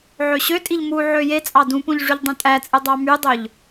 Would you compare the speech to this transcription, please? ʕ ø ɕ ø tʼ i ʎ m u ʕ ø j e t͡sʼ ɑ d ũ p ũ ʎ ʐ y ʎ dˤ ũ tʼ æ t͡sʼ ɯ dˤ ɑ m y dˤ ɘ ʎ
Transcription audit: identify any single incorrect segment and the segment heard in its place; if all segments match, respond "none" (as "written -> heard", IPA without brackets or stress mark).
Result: ɘ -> ø